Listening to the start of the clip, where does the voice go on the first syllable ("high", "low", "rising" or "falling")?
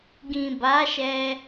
low